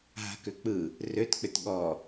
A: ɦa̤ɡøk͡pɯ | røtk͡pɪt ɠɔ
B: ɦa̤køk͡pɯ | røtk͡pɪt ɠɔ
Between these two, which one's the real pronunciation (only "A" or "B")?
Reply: B